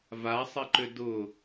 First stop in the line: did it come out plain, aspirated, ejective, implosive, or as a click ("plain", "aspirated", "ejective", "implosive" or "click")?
click